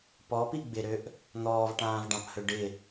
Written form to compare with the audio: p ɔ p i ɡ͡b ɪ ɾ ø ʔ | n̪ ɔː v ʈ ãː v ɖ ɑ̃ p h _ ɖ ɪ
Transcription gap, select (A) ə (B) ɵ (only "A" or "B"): B